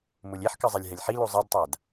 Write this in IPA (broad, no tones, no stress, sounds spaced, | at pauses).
m u lʲ e ħ k ɨ zˤ e lʲ ɦ ɛ lʲ ħ i l u zˤ e d tˤ a d